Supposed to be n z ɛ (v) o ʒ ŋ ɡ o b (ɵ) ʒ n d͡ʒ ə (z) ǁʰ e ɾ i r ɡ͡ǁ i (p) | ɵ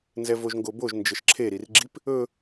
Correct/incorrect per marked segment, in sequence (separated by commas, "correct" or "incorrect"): correct, incorrect, incorrect, correct